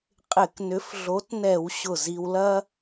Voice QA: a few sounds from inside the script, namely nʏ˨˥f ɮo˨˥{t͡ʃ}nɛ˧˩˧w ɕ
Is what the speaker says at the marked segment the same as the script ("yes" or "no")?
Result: no